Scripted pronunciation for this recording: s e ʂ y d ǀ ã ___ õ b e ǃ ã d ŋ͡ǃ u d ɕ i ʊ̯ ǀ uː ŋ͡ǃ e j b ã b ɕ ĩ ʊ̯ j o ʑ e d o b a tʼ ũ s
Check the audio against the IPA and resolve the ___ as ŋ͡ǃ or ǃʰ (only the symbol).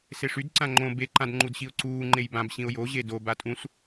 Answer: ŋ͡ǃ